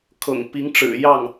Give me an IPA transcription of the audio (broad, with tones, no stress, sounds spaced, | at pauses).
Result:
kʰ ɤ̰˨˩ ŋ p i˧˥ ŋ ʈ͡ʂ ɻ̩˨˩ j ɑ˥˩ ŋ